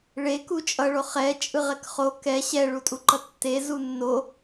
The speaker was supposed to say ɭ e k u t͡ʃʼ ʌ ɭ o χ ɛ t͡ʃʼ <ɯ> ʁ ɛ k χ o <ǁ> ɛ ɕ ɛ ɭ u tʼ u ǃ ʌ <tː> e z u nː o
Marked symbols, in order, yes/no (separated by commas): yes, no, yes